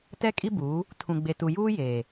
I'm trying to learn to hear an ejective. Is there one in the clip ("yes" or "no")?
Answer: yes